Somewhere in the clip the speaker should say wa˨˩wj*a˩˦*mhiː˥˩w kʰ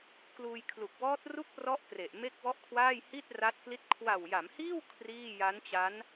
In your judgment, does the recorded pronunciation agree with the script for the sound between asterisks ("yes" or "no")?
yes